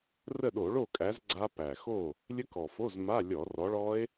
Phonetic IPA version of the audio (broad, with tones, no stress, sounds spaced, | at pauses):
r ə˥˨ ɗ o˧˩˧ ɭ o˥˨ kʼ æ˨˦ z ɡ͡ǀ a˦˥ p æ˨˩ x o˥˨ | lʲ ə˦˥ k ɔ˨˩ f o˧˥˧ z m a˧˥˧ lʲ ɔ˧˩˧ r ɔ˨˦ ɭ ɔ˦˥ e̯